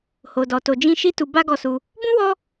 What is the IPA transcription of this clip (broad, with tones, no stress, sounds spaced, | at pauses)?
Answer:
h o˨ d ɔ˨ t o˨ d͡ʒ ĩ˧ ʃ i˦ t u˧ b a˦ ɡ ɔ˧ s u˧ | b ũ˦ w ɔ˦